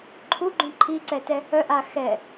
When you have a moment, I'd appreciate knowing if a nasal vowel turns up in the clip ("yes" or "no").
yes